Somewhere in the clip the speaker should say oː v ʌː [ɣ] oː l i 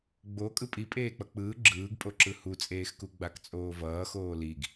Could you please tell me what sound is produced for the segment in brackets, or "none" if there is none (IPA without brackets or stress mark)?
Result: x